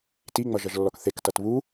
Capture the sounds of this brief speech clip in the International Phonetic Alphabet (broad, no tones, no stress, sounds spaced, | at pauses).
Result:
t i ŋ͡m ʌ ʒ ʌ ʒ lː ɔ k θ e k t ʌ t β u